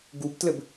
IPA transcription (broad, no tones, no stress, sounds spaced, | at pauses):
ɡ u b t l ɘ b